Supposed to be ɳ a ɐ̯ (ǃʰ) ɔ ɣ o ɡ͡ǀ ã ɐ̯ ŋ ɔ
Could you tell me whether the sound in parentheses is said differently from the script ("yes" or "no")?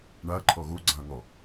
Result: no